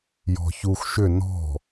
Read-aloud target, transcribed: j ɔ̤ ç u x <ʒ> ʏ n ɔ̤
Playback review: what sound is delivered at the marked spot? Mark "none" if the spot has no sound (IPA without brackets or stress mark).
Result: ʃ